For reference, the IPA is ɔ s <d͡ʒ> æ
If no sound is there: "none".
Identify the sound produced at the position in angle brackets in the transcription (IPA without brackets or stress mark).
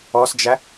d͡ʒ